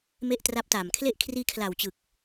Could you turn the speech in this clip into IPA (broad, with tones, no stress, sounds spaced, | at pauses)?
m e˦˥ ʔ t r a˦˥ p̚ t aː˨˩ m kʰ l e˥˩ ʔ kʰ r iː˧ kʰ l a˨˩ w t͡ɕ ɯ˨˩ k̚